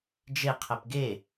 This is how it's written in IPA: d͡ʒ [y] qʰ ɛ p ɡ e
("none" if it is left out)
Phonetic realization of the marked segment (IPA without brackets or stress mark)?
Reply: e